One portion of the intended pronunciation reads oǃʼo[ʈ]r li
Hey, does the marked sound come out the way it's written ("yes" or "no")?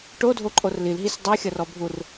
no